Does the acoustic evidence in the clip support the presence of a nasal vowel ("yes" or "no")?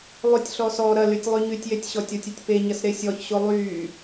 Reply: no